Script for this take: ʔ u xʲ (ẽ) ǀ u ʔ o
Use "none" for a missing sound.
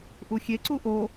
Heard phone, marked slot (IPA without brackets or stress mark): e